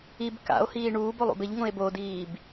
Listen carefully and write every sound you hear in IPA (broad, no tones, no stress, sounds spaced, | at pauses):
i b k a̰ o̯ h iː ɳ uː b o lˠ ṵ b ɪ ʎ ŋ õ e̯ b o d iː b